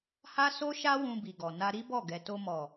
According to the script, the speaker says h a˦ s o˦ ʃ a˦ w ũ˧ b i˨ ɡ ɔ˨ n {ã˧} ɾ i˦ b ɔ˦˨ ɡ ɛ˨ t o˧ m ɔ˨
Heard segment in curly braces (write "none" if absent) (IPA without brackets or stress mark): a˧